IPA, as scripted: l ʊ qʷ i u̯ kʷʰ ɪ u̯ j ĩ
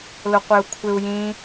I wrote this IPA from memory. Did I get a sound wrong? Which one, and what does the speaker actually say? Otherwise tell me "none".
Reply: i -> ɪ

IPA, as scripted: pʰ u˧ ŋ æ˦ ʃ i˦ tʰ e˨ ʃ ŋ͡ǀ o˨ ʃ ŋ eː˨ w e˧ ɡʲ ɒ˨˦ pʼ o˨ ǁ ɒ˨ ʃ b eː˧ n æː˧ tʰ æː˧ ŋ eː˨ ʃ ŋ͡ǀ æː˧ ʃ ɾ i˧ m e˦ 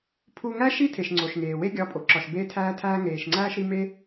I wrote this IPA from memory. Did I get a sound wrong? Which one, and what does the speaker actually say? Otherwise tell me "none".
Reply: n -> tʰ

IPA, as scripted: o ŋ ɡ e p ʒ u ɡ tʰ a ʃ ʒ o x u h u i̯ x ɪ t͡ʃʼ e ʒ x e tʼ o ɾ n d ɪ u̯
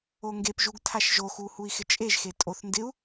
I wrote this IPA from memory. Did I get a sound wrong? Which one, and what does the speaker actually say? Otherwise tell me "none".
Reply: ɾ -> θ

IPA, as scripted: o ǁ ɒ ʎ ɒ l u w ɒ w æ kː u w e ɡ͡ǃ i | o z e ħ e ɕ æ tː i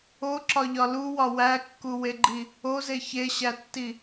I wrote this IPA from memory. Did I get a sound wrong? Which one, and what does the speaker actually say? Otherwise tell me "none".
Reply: ħ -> ç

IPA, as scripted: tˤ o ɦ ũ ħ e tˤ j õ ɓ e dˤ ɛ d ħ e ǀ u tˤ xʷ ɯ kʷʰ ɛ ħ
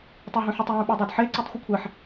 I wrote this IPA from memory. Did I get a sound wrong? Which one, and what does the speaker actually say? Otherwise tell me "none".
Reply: none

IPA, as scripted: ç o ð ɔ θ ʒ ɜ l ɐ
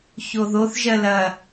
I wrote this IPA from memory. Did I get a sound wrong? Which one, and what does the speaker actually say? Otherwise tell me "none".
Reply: ɔ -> o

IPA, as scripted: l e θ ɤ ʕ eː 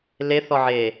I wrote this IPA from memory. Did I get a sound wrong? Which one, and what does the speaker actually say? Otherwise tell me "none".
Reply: ɤ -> ɔ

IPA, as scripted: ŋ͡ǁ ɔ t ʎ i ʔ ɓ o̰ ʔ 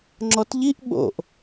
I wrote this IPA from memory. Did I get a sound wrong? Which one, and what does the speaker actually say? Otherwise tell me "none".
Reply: none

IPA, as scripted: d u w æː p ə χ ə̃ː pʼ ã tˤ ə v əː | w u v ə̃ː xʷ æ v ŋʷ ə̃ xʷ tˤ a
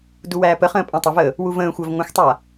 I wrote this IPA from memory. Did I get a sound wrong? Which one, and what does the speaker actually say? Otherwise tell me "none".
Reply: none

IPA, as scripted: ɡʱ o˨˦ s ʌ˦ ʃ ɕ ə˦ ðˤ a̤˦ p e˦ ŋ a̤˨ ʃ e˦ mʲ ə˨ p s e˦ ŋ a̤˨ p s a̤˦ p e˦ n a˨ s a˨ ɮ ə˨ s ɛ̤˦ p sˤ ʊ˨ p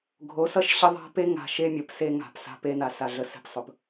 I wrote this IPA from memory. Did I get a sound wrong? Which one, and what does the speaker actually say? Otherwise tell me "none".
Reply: none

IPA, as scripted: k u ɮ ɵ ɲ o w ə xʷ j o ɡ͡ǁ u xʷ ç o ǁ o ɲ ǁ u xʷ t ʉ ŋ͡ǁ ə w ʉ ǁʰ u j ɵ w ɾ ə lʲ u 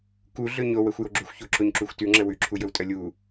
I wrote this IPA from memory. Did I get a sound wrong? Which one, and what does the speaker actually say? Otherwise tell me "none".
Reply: ɾ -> tʼ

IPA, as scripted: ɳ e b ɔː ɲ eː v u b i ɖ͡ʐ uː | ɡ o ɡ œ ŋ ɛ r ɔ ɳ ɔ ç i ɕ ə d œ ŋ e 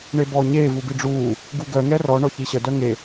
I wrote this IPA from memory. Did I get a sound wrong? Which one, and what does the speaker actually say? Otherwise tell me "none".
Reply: o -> u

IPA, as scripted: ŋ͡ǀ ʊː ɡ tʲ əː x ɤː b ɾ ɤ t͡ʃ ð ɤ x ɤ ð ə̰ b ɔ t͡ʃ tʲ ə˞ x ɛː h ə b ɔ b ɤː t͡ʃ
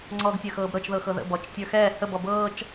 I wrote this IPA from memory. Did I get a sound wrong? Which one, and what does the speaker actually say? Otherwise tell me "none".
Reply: ʊː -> ɔː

